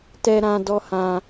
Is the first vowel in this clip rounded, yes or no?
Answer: no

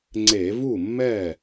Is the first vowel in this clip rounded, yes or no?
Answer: no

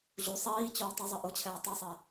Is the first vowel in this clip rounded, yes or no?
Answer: yes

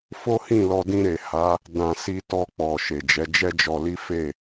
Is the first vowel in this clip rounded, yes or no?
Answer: yes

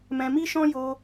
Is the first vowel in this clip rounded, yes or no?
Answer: no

